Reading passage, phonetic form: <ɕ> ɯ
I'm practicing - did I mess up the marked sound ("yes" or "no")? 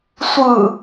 yes